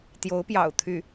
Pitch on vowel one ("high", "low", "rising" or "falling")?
rising